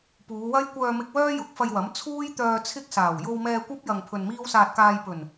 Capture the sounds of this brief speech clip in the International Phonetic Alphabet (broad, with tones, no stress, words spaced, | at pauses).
puː˨˧wɐ˥j kʷœː˧mɪ˧k̚wœː˥ jʊ˨˥k̚fɐ˧jwɐ˨˥m t͡sʰuː˥jt̪œː˧ t͡sʰɪ˥k̚saː˨˩w jo˧wmɛː˧kʷɐ˥p̚ jɐ˧ŋpʰɵ˧nmiː˥w saː˧t̚kaː˧j pɵ˨˩n